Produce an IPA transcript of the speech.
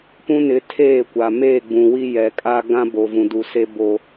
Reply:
p ũ˦ n ɪ˨˦ tʰ eː˦˨ kʷ a˨ m e˦˨ ɡ͡b ũ˨ w i˦ j ɛ˨ kʼ a˦ ɡ ã˦ b o˨ v ũ˨ d u˨ s e˦ b o˦

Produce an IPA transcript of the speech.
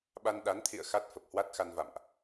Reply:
ɓ a˧ n ɗ a˨˦ n t̪ʰ ḭ˧˨ ə̯ x a˦˥ t̚ f ə˨˩ p̚ h w a˦˥ t̚ x a˧ n v a̰˧˨ m ʔ

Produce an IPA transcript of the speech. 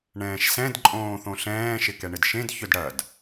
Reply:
ɳ ɛ̃ː ʃ s ɛ̃ d ǃʼ õː θ õ ɬ ɛ̃ː ʃ ɪ k ɛ ɳ ɪ d ʃ ẽ d ç ʏ d ɽ ɐ d

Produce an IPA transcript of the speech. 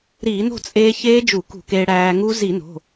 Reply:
ɾ iː˧˩˧ n o̤˥˨ t͡sʼ eː˧ ç eː˦˥ d͡ʒ u˧˩˧ k ṳ˧˩˧ k eː˧ ɽ æː˧ ŋ u˦˥ z i˧˩˧ n o̤˩˧˩

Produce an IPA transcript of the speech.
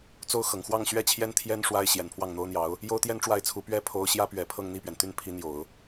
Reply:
t͡s o˥ ʊ̯ x ɤ˨˩ ŋ x w ɑ˥˧ ŋ ɕ ɥ ɛ˥˩ t͡ɕʰ j ɛ˥ n t̪ʰ j ɛ˥ n ʂ w a˥ ɪ̯ ɕ j ɛ˨˩ n pʰ w ɑ˥˩ ŋ n̪ o˥ ʊ̯ n̪ j ɑ˧˥ ʊ̯ | j o˥ ʊ̯ t̪ j ɛ˥ n ʈ͡ʂ w a˥˩ ɪ̯ t͡sʰ u˧˥ p ɥ ɛ˥ pʰ o˥ ʊ̯ ɕ j ä˥ p ɥ ɛ˨˩ pʰ ɤ˥˧ ŋ n̪ i˥˩ p ɥ ɛ˩ n t̪ y˥˩ n pʰ i˧˥ n̪ j o˨˩˦ ʊ̯

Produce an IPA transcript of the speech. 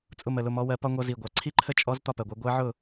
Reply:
t͡sʼ ʊ˥˨ m ə˨˩ l ʊ˥˨ m ɔ˧˥ w ɜ˧˥ p ɒ˥ ŋʷ ʌ˧˥ z i˨˩ ɡʷ ɑ˨˩ ǀʰ i˥ ǃʰ ə˥ t͡ʃʼ ɔ˧˥ z t̪ ɒ˥˨ p ɜ˨˩ ɡʷ ɜ˧˥ ɡʷ ɜ˧˥ ʕ ʊ˥˨

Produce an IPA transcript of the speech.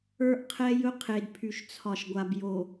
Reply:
ə˞˦ ʔ qʰ ɛ˦ j ɵ˦ qʰ e˨ d pʰ y˨ ʃ t͡sʰ ɒ˨ ʃ ɡʷ a˨ b j o˨

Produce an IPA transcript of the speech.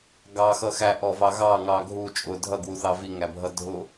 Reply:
ɡ ɑ x ʌ x æ ʔ ɔ v ɑ ɣ ɑ ŋ ɑ ɡʱ u t͡ʃʼ ʊ dʱ ʌ ɡ w u θ ɑ v i ŋ æ bʱ ʌ dʱ ʊ

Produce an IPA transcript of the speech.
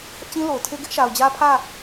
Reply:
h ɪ˦ ʔ t͡ɕ ĩ˦ l o˨ ʊ̯ tʰ e˦ ɡ ɪ˦ ʔ ʃ a˨ ʊ̯ d͡ʑ ä˦ pʰ ä˦˨

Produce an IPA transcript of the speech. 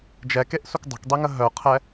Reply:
d͡ʒ ɛ k e ʔ s u k dˤ ə̤ k dˤ i ŋ ə ɦ œ qʰ ɛ

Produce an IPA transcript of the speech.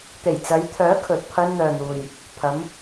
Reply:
t̪ e˨˩ j t͡s ɐ˨˧ j t̪ʰ œː˨˥ kʰ ɵ˨ t̚ pʰ ɐ˧ n n̪ œː˨ n̪ uː˨ j | pʰ ɐ˨˧ m

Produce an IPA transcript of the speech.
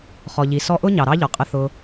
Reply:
χ ɔ˨ ʎ i˨ s ɔ˧ ʔ ʊ˦ ɲ ɑ˨ ɾ ɑ˦ ʎ ɔ˨ qʼ ə˧ θ ʊ˧

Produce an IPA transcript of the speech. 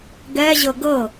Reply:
ɡ ɛ ʑ ɤ ɡ ɤ

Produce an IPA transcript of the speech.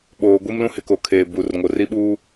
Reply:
ɓ oː˨ ɡʷ i˦ m l ũ˦ h ɪ˨ k o˨ kʰ eː˨ b u˨ r ŋ o˨ r i˦ ɓ uː˦

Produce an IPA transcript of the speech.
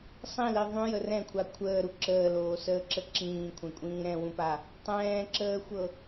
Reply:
sˤ ĩ l i ðˤ ũ j ə r ɛ̃ kʷʰ a kʷʰ əː ɾ u ǁ əː l oː s əː ǁ ə ǁ ĩː kʷʰ ɛ̃ kʷʼ ĩː ɾ ɛ̃ w ũ p a | tˤ ɛ̃ː ǁ əː xʷ ɤ

